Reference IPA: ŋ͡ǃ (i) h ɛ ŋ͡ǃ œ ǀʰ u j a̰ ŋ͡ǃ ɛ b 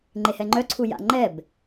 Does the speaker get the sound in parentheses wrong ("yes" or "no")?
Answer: yes